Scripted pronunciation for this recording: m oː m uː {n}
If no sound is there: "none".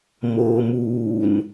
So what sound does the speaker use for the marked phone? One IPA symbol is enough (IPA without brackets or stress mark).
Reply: n